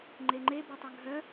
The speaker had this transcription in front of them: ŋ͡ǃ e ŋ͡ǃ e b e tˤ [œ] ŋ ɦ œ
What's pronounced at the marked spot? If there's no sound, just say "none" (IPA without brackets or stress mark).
œ